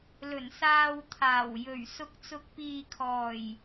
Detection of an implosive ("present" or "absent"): absent